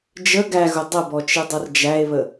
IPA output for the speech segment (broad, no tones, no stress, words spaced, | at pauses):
d͡ʒə ɡæɣʊ dˤəbɔt͡ʃidˤʌr d͡ʒæe̯βə